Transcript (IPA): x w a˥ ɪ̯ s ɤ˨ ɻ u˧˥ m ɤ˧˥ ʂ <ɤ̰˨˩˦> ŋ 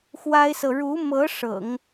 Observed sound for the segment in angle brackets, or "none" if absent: ɤ̰˨˩˦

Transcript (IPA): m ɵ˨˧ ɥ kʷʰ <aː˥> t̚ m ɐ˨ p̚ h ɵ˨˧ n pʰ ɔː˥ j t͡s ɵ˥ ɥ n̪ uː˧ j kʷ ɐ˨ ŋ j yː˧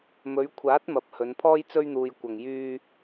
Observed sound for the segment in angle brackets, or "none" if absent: aː˨˥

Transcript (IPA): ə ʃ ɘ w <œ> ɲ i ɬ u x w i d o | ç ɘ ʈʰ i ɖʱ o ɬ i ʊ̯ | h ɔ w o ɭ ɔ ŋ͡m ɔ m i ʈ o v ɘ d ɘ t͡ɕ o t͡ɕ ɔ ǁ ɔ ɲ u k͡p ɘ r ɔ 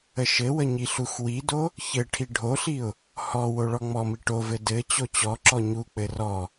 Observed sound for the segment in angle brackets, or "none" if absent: ə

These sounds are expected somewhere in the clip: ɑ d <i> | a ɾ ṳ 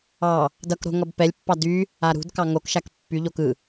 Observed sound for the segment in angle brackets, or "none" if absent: y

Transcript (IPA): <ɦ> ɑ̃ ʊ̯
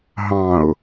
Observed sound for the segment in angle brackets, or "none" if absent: ɦ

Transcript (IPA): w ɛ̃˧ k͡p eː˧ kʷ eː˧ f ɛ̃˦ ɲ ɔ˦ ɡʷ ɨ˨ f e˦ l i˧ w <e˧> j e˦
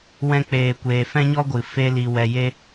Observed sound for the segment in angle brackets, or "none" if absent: ɛ˧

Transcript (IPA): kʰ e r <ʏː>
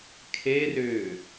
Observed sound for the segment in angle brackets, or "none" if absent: ʏː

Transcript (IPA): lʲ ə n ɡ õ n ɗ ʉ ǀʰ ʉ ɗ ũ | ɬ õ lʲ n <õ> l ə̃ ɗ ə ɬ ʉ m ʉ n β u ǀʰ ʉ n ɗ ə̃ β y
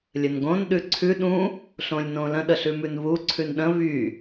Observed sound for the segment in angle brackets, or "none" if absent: õ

